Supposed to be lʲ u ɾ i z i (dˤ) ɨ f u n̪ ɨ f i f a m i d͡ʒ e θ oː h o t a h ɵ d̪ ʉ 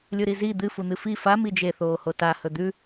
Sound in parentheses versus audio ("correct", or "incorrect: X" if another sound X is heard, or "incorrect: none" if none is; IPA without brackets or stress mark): incorrect: d̪